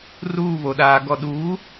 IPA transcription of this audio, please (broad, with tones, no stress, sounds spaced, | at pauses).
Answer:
r uː˦˨ β o˨ ɗ aː˨ ɡ ɔ˨ ɗ uː˨˦